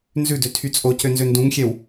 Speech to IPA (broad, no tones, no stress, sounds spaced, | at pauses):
n z ʉ d ø tʰ y t͡sʼ o c ø n z ø n d ũ ŋ xʲ ɛ w